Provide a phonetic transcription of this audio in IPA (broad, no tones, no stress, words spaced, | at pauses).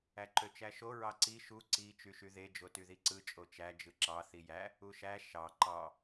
æǃøt͡ʃæʃo ɹɑǀi ʃu ǀi t͡ʃyʃyðe d͡ʒotyðiǀɯ t͡ʃʼot͡ʃæ d͡ʒɯǁɑ θijæ | uʃæ ʃɑ ǃɑ